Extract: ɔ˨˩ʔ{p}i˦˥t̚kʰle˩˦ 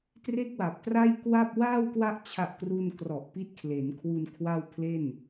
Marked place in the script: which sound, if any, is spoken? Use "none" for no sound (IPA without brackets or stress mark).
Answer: p